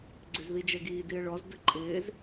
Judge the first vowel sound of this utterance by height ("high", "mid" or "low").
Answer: high